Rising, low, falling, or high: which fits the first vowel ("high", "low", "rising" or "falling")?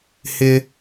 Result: high